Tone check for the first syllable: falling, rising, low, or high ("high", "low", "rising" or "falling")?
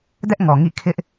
high